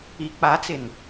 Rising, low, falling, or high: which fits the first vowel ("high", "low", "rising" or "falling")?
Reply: low